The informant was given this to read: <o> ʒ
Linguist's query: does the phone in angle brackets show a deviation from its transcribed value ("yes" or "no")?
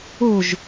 no